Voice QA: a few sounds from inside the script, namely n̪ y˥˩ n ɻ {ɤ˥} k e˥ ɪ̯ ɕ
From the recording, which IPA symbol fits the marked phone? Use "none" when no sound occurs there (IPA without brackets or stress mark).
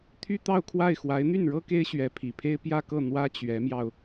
ɤ˥